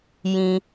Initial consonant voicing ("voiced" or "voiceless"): voiced